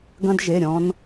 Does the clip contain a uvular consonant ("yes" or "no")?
no